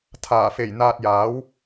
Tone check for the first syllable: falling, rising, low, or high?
low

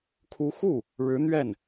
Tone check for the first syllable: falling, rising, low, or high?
rising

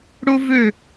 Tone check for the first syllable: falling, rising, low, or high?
high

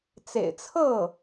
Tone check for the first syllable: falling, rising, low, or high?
low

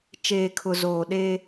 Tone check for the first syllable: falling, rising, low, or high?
low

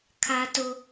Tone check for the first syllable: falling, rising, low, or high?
high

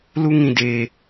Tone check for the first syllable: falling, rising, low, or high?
high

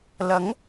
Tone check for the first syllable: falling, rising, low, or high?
rising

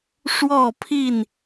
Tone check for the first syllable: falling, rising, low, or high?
falling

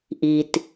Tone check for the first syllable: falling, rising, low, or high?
low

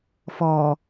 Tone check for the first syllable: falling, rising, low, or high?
low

